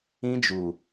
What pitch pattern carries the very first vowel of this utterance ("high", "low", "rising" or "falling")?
high